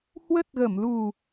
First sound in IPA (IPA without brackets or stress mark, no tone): h